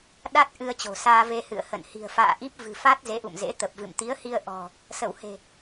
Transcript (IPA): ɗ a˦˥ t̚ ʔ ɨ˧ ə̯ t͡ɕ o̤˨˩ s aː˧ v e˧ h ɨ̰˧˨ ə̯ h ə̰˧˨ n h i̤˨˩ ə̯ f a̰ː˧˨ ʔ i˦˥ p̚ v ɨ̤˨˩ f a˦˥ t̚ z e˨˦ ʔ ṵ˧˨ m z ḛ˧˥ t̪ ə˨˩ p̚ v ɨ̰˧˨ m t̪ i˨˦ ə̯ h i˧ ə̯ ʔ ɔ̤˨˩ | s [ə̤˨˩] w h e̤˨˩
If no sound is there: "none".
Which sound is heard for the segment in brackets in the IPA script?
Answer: ə˧˩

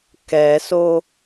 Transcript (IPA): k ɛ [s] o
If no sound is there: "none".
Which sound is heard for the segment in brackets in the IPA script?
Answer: s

